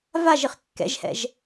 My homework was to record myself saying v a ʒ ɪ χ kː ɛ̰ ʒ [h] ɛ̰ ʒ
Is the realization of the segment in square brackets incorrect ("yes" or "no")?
no